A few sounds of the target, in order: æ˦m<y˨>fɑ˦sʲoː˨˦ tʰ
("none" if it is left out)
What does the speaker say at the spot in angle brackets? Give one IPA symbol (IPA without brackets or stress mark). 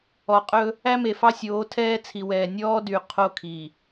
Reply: e˨